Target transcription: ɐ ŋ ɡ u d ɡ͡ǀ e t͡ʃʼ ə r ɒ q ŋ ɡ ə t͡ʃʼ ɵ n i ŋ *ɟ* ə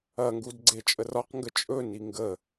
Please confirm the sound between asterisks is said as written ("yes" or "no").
no